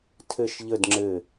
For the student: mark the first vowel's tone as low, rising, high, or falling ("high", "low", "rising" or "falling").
falling